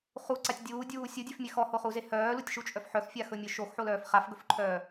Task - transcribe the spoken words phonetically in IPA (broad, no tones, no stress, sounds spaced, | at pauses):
χ u ǀ a tʲ dʲ uː dʲ uː sʲ u dʲ e f mʲ ɛ x ɔ h o χ u z e h œː l u tʲ ʃ u t͡ʃʼ œ f ħ œ x fʲ a x ɵ mʲ œ ʃ o x ħ o l œː f χ a f ɡ ɵ f ǃʰ œː